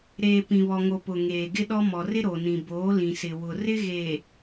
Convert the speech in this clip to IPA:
ɾ eː˨ p ĩ˨ β ɔ˨ ŋ o˨ p ʊ˨ ŋ eː˨ ɡ ɪ˦ ɗ ɔ˦ m ɔ˨ r ɪ˦ ɾ o˨ n ĩ˨ b oː˨˦ l ĩ˨ s ɪ˨ w ʊ˨ r ɪ˦ ɣ eː˨

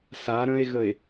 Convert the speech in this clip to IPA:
s a ɾ ə̃ e̯ ɣ ə e̯

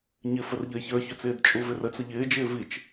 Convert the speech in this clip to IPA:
ɲ ɪ f ə r ʎ ə e̯ ç ə˞ ç ʏ t͡s ɪː d t͡ʃʼ u v ɪ r ə t͡s ə ʎ ɪː d͡ʒ ɪː v i t͡ʃ

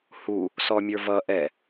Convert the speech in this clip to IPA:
h u | s ɔ mʲ ə˞ v ʌ ʔ ɛ

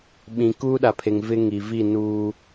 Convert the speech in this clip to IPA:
ɓ ĩ˨ k uː˦ ɗ a˨ pʰ e˨ ŋ v ɪ˦ ŋ i˨ v i˦˨ n uː˦

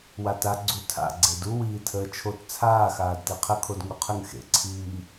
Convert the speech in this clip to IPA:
w a t a ɡ͡ǀ u tʰ a̰ ɡ͡ǀ e d u w iː tʰ əː t͡ʃʰ o t t͡sʰ aː x aː d t e qʰ ə kʰ o d ŋ u qʰ ə ŋ x ḛ ǀʰ iː

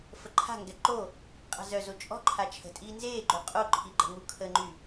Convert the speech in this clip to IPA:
f ə ǃʰ a̤ ŋ ɡ ɛ ǃ o | qʼ a̤ z œ z o t͡ʃʼ ɔ̤ ǃʰ a t͡ʃʰ ə̤ tʼ iː n z eː ɡ͡ǃ ø qʼ o ǃʰ i ɡ͡ǃ ə̤ ŋ u kʰ ə ŋ͡ǃ y

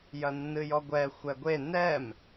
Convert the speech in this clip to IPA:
j ɐ nː ɨ j ɔ ɡʷ ɛ xʷ ɛ ɡʷ e n ɛ m

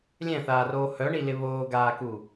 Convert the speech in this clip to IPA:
lʲ ɛ̃ θ aː r oː h œ ɳ i l ɪ β oː ɡ aː k u

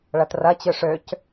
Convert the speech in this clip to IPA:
ɭ ɐ t r ɐ t͡ɕ ø ʂ ø c

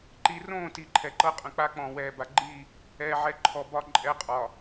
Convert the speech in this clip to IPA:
ǃ i˨ r õː˦˨ t i˨ ǃʰ ɛ˨ ǃ ɤ˦ qʼ ə̃˨ k͡p a˦ k͡p ɔ̃ː˨ w ɛː˨ b a˨ ɡ͡ǃ i˦˨ | ɛː˨ ʕ ɛ˨ ǃʰ ɔ˨ b ɒ˨ ǃʼ ɛ˨ qʼ ɒ˨

